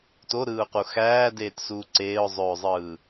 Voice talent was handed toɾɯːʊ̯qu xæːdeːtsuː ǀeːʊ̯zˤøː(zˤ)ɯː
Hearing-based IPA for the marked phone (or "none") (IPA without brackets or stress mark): zˤ